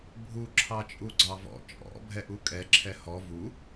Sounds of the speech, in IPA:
bʱ u ǁʰ ɑ t͡ʃʼ u ɡ͡ǀ ɑ v ɔ̰ t͡ʃʼ ɔ̰ bʱ ɛ ʔ u kʼ ɛ ǁʰ ɛ h ɔ v u

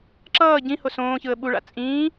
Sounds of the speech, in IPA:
ǁ ʌː ɟ ĩ h o s õː ç ɯ ə̯ ɓ u ɭ a̰ t͡sʼ ĩː

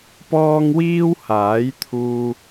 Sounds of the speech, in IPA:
p ɔː˧ ŋ w iː˥ w h aː˨˥ j t̪ʰ uː˧

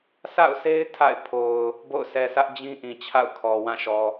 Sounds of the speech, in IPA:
s a̰˦˨ ʊ̯ s e˦ ɪ̯ tʰ a̰˦˨ ɪ̯ pʰ o˨ ʊ̯ | b o̰˦˨ ʊ̯ s ɛ˨ s ä˦ ʔ d͡ʑ ĩ˦ ʔ ĩ˨ t͡ɕʰ a̰˦˨ ʊ̯ kʰ ɔ˨ w ã˦˨ ʃ ɔ˨

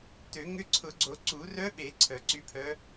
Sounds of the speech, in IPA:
t ø˨˩˦ ŋ ʏ˧˥ ǀʰ ʊ˨˩˦ ɡ͡ǀ o˨˩˦ ǀ u˨˩˦ r œ˧˥ ɓ e˨˩˦ ǀʰ œ˨˩˦ ǀ y˧˥ pʰ œ˧˥

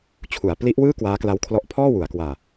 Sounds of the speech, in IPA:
t͡ɕʰ u˩˦ a̯ p l i˦˥ ʔ w ɯː˥˩ k w aː˦˥ k l a˦˥ w kʰ l ɔ˦˥ ʔ pʰ ɔː˥˩ w u˩˦ a̯ k w aː˧

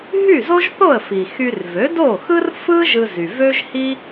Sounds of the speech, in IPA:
ɦ y˥˩ z o˥ ʒ θ o˥˩ ə̯ f i˩ x y˧ r v ø˩˥ d o˥˩ x ɯ˥ r f ɯ˥ ʒ ɯ˧ z y˩ v ø˥ ʒ h i˥

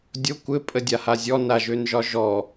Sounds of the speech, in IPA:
dʲ o kʷ ɘ pʼ ə dʲ a h a zʲ ɔ n a ʒ ø n ʒ ɒ ʒ ɔ

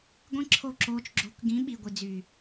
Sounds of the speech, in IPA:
ɡʷ ĩ˦ ǁʰ o˦˨ ǁ oː˧ t͡ʃ ɡ͡ǁ o̤˧ k ɡ ĩ˨˦ ɓ i˨ ɡʷ i˨ d͡z y˨

